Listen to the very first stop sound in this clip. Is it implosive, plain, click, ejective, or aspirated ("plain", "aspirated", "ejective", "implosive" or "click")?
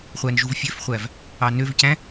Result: plain